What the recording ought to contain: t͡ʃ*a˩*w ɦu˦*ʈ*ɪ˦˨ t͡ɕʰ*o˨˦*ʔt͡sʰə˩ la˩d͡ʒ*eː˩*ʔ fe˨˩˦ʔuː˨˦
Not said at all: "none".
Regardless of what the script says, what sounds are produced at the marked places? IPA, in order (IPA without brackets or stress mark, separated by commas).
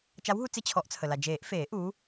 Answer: a˨˦, t͡s, ɔ˨˦, eː˨˩˦